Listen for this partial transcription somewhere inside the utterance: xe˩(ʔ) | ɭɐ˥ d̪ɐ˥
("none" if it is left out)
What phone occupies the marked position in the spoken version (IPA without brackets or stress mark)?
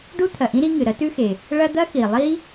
none